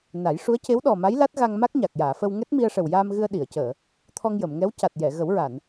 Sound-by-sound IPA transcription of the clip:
na˨˩˦j ʂu˧˥ə̯ce˧˥w ɗɔ˨˩ma˧˥j la˦˥t̚ɣa˧ŋma˦˥k̚ ɲa˨˩k̚jaː˨˩˨fə˧w ŋɛ˦˥t̚mi˧ə̯ʂə˨˩wjaː˧m ɣɨ˧ə̯ ɗi˨˩˨ə̯cəː˨˩˨ | t̪ʰɔ˧ŋjə˨˩˨mŋɛ˧˥w ca˨˩t̚ jɛ˨˩˨ɣə˨˩˦wɹa˨˩˨n

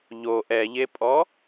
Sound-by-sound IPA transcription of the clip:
ʎo ʔɛʎepʼɔ

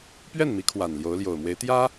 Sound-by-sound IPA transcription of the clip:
pɥɛ˥˩nmi˧˥ kʰwa˨˩n ljo˧˥ʊ̯ljo˨˩ʊ̯mwe˧˥ɪ̯ t̪jä˥

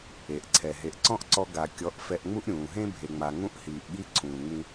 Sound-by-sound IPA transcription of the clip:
e˨ʔǀʰɛ˨ ɦe˨ʔ ǀɔ̃˦ʔǀɔ˧ ɡa˨kʲɔ˨˦ʔ fɛ˧ʔŋ͡mu˦ʔɾʲũː˨ ɦẽ˦ bʱe˨ŋ͡ma˨ ŋũ˦ʔhiː˨ʔɠi˦ ǀʰũː˨ŋ͡mĩ˧

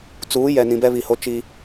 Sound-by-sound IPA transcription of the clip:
t͡suː˨˦ jɛ˨nĩ˨bɛ˦ βi˨ho˦ t͡ʃi˦

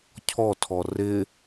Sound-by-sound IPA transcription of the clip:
cʰɔtʰɔ rɪ

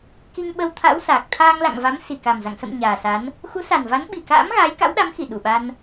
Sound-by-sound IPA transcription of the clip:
ki˧ŋɓə˧wt̪ʰa̰˧˥w saː˨˩k̚ t̪ʰaː˧ŋla̰˧˨ŋva˨˦m si˨˩ka˨˩mza̰˧˨ŋ sə̰˧˨m ɲaː˨˩sa˨˦n | xu˨˦sa˨˩nva˨˦n ɓi˨˩ka̰ː˧˥m ɣaː˨˦jka̰˧˥wɗa˨˦mxi˧˩ ɗu˧˩ɓa˧n

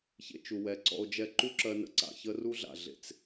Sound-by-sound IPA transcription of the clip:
çḛ˧t͡ʃu˨wɛ˨ǀɔ̰˧o̯ d͡ʒɛ˧ǃu˦ǁɜ˧ nə̰˧ǀa̰˨ çə˦ru˦ɮa̰˨ ɮḛ˨t͡s

